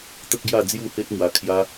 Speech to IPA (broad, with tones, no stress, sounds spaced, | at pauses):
t̪ ə˦ k̚ ɡ j a˥˧ d͡z j u˥˧ h e˦ t̚ m w a˧ kʰ j a˦